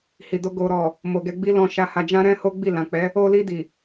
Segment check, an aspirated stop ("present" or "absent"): absent